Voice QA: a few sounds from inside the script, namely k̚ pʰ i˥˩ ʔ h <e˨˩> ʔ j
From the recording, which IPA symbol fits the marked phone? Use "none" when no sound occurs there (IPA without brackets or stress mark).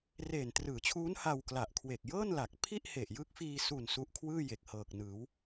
e˨˩